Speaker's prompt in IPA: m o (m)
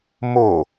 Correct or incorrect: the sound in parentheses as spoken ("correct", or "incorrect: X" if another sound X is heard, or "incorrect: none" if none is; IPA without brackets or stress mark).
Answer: incorrect: none